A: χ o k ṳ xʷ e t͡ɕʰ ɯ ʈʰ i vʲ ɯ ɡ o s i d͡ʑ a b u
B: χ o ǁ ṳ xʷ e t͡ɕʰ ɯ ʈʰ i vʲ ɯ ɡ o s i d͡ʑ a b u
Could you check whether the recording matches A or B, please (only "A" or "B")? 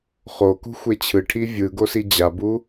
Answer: A